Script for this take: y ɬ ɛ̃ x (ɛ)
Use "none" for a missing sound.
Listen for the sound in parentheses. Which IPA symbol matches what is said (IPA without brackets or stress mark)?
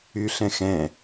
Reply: ɛ̃